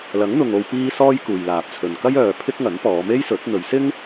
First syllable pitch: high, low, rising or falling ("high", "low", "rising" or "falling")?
rising